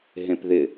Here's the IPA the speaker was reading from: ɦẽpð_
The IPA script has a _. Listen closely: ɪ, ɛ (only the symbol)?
ɪ